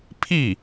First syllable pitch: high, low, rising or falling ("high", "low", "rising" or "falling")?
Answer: falling